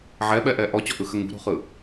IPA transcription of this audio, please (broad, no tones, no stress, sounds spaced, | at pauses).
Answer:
ʕ ɛ ɓ ɛ ʔ ɛ ʔ ɔ t͡ɕ ɔ ʔ ɯ x ə ŋ ṳ ɾ ṳ χ ɯ